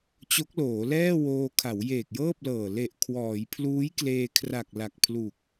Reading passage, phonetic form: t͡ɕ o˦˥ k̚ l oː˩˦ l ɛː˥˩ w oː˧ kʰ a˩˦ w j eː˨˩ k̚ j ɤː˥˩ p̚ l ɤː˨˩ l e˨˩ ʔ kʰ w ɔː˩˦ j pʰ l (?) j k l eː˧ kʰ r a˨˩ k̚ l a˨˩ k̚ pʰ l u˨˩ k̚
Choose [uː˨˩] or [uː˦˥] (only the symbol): uː˦˥